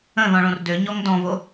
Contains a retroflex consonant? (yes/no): yes